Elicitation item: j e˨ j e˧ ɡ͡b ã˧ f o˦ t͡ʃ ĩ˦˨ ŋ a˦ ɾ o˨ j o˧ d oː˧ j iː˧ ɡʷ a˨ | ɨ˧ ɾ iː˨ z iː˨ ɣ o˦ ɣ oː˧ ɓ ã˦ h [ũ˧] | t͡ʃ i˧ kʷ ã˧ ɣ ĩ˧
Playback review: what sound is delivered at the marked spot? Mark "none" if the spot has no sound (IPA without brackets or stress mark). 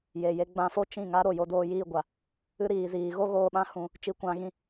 ũ˧